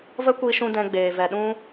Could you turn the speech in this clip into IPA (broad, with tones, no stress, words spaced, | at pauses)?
və˦kʷi˧ʃũ˧ dɛ̃˧ɡ͡beː˨vɛ˨ɗũ˦